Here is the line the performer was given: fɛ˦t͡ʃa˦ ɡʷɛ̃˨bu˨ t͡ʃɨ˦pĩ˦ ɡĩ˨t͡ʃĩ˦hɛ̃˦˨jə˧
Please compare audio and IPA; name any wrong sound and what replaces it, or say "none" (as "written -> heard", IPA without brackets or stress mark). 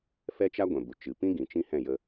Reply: ɨ˦ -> ɨ˨